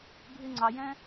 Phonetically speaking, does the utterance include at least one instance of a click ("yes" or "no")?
yes